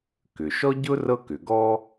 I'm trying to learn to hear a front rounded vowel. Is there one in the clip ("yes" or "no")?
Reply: yes